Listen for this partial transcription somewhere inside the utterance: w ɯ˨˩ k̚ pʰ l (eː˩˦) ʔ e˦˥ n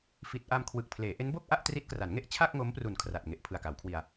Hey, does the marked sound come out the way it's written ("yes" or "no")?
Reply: yes